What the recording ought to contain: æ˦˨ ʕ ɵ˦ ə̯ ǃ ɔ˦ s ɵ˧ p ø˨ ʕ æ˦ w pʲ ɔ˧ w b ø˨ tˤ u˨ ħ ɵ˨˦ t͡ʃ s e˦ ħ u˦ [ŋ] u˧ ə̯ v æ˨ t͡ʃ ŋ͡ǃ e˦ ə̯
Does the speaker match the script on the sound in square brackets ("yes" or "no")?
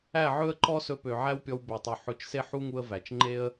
yes